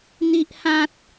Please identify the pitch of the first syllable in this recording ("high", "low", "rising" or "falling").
high